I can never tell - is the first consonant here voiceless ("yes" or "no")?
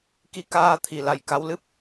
yes